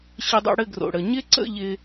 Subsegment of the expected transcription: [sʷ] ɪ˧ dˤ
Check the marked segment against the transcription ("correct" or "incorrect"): incorrect